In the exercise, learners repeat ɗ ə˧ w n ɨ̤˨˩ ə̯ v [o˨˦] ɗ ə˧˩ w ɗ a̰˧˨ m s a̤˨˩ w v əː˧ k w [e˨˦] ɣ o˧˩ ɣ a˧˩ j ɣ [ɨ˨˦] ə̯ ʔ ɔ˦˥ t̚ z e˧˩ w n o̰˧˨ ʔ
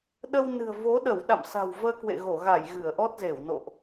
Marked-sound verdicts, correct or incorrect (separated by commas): correct, incorrect, incorrect